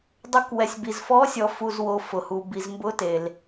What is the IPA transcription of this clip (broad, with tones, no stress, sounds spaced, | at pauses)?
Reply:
dˤ ʊ˧˥ k w ɛ˨ sʲ b i˨ z f ɔ˧˥ sʲ ɔ˨ f u˨ z w o˨ f ʊ˨ h u˨ b i˨ z m b ʊ˧˥ t e˨ l